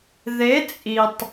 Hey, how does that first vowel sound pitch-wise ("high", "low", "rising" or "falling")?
rising